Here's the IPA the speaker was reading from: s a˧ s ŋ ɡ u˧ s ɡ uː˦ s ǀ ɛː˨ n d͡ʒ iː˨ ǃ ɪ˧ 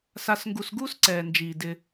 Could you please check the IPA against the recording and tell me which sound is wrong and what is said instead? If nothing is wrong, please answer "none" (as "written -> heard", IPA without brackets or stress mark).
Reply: ǃ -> d